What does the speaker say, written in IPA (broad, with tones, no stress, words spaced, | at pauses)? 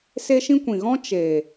se˦ʃĩ˦ kʷĩ˨ɣɔ̃˦ t͡ʃe˨